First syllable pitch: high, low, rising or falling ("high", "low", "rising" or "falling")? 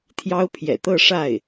high